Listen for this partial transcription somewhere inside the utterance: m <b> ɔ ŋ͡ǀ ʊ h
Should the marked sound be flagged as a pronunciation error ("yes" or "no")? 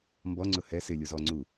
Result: no